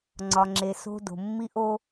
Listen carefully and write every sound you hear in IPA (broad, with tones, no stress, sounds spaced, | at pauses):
ŋ͡ǀ ɒ˩ ŋ͡ǁ e˩ s o̤˥ d o̤˩ mː i˥ ʔ o˥